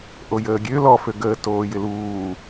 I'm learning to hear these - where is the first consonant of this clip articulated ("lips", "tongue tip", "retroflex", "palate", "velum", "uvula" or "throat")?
throat